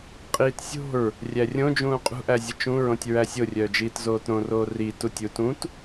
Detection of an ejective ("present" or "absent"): present